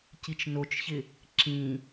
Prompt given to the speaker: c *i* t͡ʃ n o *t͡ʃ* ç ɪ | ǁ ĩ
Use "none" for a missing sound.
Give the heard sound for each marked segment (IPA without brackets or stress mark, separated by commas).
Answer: i, t͡ʃ